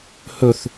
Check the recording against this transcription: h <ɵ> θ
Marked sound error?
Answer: no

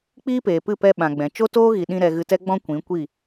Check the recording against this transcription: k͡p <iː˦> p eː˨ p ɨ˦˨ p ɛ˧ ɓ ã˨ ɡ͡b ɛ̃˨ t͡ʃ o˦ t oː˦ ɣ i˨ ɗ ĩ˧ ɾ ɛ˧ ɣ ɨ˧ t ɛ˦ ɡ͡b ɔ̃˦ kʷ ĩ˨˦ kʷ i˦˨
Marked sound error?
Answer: no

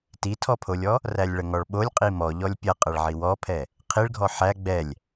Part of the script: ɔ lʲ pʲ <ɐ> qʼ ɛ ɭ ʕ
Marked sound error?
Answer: no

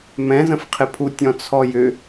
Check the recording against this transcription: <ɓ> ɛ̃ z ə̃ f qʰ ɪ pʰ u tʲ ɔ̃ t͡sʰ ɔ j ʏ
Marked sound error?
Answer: yes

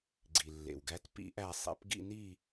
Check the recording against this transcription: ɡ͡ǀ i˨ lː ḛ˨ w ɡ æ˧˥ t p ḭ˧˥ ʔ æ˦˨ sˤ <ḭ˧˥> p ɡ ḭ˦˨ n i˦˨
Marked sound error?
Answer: yes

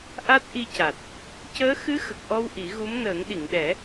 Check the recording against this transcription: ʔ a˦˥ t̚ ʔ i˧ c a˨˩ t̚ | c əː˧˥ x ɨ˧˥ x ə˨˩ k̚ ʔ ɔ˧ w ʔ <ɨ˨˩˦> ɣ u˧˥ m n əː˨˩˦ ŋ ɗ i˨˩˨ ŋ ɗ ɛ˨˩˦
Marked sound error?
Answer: yes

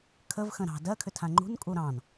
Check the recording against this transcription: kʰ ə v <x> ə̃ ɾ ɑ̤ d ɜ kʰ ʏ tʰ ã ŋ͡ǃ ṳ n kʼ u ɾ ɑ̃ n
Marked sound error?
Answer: no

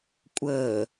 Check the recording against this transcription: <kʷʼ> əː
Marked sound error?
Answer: no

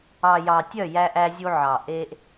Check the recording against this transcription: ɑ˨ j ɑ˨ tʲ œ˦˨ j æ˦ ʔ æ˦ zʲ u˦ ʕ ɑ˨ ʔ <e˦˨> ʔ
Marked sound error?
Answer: yes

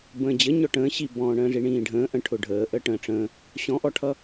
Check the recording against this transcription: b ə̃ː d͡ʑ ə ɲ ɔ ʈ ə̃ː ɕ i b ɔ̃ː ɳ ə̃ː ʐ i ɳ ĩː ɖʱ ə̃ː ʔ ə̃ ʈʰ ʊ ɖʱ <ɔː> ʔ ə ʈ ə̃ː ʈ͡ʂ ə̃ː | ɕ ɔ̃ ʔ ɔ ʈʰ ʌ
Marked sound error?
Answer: yes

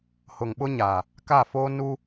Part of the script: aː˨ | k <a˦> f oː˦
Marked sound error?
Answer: yes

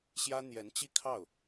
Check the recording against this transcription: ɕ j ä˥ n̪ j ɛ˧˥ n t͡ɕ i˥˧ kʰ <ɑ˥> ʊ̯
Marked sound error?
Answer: yes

